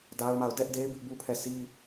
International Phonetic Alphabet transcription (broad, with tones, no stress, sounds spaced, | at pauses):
d a˦ ʊ̯ m a˦˨ ʊ̯ d ɛ˦ ʔ d e˦ ɪ̯ b ɪ˦ ʔ b u˦ pʰ ɛ˦˨ sʰ i˦